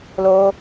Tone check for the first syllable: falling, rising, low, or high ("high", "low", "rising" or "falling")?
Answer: high